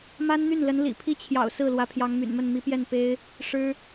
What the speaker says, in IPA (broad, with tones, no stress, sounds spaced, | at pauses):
m a˥ n n̪ y˥˩ n l ə˧˥ n l ḭ˨˩ pʰ i˥ t͡ɕʰ j ɑ̰˨˩ ʊ̯ s ɹ̩˥˩ l w ä˧˥ pʰ j ɑ˧˥ ŋ m y̰˨˩ n m ə˥˩ n m i˧˥ p j ɛ˥˩ n p e˥ ɪ̯ | ʂ ɻ̩˥